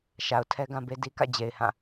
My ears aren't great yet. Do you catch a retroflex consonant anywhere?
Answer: no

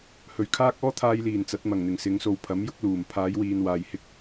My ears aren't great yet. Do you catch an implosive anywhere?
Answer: no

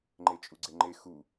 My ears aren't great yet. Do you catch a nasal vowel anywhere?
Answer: no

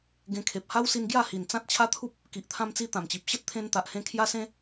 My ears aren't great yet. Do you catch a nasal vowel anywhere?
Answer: yes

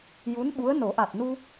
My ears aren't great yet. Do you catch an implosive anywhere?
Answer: yes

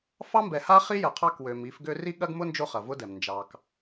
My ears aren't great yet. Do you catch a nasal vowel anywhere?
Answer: no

